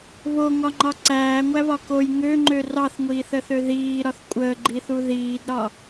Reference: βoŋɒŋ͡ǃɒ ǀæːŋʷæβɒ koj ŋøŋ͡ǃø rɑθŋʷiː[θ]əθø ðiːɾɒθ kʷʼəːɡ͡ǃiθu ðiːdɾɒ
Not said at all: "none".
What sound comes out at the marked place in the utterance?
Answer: θ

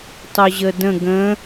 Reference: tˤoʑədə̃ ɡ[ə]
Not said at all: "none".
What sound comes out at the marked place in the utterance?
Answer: ə̃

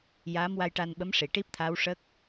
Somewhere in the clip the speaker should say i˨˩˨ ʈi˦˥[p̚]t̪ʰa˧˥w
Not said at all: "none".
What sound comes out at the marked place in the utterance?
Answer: p̚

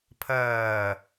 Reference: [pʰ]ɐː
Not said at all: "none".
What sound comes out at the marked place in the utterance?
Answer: pʰ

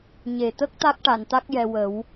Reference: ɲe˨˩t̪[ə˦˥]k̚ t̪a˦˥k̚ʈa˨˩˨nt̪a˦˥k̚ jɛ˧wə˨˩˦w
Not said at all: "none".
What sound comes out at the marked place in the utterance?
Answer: ə˦˥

